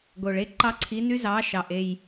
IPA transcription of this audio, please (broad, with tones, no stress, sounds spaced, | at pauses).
ɡ o˩ ɭ e˦˥ ǃ ɑ˦˥ ǀʰ i˨˦ n y˦˥ z ɑ˨˦ ʃ ɑ˩ ʔ e˩˧˩ j